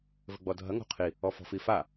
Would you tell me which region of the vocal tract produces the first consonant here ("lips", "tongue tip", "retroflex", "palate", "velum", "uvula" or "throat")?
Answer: lips